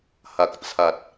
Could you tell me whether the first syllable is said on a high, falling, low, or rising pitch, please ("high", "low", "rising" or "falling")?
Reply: low